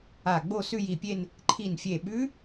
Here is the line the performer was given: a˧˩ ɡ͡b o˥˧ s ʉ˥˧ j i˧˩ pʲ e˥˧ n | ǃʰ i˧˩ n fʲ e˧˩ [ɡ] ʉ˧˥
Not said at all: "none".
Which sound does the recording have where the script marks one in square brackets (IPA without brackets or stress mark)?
ɓ